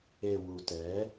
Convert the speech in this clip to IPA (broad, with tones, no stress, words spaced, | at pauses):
e˨ wu˨tɛ˨˦